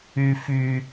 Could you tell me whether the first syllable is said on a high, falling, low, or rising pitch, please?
low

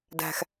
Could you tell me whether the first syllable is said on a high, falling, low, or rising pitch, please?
low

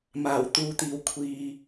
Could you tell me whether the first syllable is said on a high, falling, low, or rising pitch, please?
low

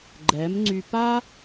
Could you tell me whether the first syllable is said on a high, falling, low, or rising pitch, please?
rising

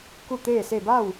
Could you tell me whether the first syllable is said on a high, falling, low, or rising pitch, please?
falling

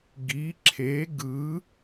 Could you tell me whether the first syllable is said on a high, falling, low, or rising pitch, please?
rising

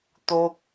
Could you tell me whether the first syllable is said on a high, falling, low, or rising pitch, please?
high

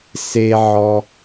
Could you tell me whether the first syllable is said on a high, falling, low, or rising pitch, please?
low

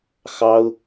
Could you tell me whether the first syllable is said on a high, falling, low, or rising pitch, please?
high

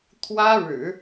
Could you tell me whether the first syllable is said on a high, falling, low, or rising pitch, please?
high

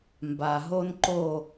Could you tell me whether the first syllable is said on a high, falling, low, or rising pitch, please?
low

